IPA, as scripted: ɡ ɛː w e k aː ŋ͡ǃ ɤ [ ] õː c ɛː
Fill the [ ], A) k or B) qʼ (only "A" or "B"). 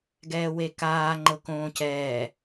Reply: A